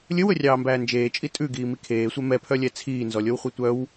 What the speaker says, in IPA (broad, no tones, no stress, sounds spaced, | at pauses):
lʲ ɵ w ɵ rʲ ɑː m b æː n d͡ʒ eː t͡ʃʼ i tʼ ʉ ɡ iː m i kʰ eː sʷ ɛ m ɛ pʰ œ lʲ ɛ t͡sʰ iː n z ɔ lʲ o w χʷ œ tʷ œ w